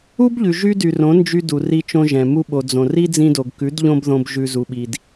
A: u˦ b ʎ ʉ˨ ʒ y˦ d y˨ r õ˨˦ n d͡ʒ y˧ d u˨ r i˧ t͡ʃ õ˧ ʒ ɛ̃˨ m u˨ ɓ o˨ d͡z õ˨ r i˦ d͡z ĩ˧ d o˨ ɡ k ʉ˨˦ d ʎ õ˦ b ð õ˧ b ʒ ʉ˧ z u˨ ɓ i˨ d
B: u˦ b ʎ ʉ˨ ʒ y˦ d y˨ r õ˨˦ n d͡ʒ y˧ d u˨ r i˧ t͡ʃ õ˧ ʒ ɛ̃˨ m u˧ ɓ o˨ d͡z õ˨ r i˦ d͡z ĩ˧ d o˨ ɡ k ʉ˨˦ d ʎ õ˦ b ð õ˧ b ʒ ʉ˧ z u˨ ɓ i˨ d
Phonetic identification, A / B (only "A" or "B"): B